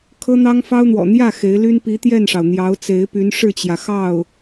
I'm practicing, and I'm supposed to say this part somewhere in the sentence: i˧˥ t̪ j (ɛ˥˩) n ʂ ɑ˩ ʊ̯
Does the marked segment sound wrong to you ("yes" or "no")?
no